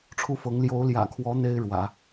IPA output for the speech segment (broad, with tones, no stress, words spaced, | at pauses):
ʈ͡ʂʰu˥˩fɤ˧˥ŋ ljo˧˥ʊ̯ljä̰˨˩kʰwɔ˧˥ n̪e˥ɪ̯ ɻwä̰˨˩˦